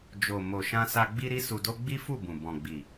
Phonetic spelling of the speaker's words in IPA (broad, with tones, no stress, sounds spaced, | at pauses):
d͡ʒ o˨ m o˨ ʃ ã˧ s a˧ ɡ͡b i˦ ɾ i˦ s u˧ d o˦ ɡ͡b i˦ f u˦˨ b ũ˨ b ɔ̃˨ ɡ͡b i˨